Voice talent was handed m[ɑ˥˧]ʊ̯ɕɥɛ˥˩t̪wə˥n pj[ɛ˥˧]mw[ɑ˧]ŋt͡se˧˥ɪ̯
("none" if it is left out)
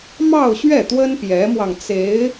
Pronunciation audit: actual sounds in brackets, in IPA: ɑ˥˧, ɛ˧˥, ɑ˧

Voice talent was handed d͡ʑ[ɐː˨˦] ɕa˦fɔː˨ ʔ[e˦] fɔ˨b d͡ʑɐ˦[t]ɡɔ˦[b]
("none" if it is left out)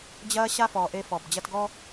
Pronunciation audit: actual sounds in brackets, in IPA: ɐː˦, e˦, t, none

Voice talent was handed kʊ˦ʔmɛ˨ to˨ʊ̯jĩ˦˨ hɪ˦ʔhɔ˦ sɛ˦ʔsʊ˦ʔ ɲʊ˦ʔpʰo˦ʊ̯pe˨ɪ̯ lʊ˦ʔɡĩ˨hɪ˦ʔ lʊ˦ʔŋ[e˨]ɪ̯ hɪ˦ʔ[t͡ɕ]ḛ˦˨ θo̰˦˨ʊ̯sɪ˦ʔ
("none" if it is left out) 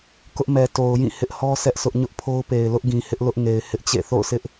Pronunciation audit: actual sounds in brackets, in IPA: e˨, t͡ɕ

